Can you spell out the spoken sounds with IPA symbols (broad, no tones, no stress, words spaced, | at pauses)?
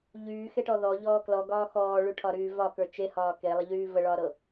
ʎyːxeʈɔ ðɔʎɔː klɔɡɒː xɔːɭyʈʰɒɾyː vɒkə˞ t͡ʃehɒː kelˠəʎyː vəɭɒːɾɤ